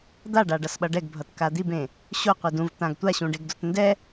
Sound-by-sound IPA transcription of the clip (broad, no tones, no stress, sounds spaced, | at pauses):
d̪ a ɖ a ɖ ʌ s ɓ ʌ ɖ ɛ ɡ bʱ ʌ t k a d̪ i b ẽ | ɕ o qʷ i d ũ v t̪ ã ɡ tʷ a ɕ ũ ɖ e ɡ d o t n d ɛ